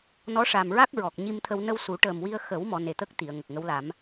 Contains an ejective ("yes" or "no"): no